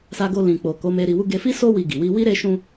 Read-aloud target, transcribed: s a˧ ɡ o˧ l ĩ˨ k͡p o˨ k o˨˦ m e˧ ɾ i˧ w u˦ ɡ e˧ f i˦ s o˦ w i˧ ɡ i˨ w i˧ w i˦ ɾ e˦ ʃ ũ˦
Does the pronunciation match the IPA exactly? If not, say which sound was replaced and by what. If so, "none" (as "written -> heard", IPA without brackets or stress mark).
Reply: none